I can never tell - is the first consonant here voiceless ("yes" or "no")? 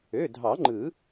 no